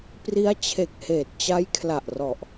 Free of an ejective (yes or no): yes